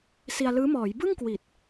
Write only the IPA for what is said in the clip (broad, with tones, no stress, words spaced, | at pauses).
si˧a̯lɯː˦˥ mɔː˩˦jbɯ˥˩ŋ kwi˨˩t̚